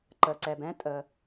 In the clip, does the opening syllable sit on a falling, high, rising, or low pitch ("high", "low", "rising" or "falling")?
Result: low